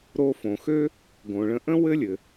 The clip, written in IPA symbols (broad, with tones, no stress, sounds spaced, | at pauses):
ɾ o˧ f õ˩ x ø˥ | ɡ õ˩ ɭ ə̃˧ ʔ ə̃˥ w ɘ˥ lʲ ɘ˩